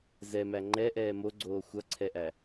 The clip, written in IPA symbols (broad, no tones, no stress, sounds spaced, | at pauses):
z ɛ m æ ŋ͡ǃ ɛ ʔ ɛː m o ɡ͡ǀ oː xʷ ʌ ǀʰ ɛ ʔ æ